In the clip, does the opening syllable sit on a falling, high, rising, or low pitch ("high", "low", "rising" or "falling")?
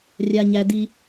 low